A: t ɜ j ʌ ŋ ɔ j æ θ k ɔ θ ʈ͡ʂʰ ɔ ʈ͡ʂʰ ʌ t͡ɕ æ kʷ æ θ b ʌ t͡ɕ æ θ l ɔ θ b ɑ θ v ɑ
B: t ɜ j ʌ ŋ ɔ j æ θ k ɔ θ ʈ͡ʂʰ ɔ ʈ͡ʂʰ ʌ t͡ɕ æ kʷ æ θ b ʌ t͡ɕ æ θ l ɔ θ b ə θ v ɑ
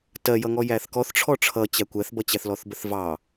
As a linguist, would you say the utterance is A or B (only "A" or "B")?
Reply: B